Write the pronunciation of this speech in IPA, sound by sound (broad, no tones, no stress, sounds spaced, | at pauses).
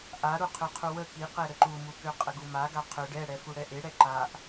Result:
ʔ a ɾ u qʰ ø qʰ u w ə k i q ɛ ɾ ə ǃ u m u k ø qʼ ə ɡ u m a ɡ a qʰ ø ɖ ɛ ɽ ɛ f u ɽ ɛ ʔ e ɽ ɛ ǃ a ʔ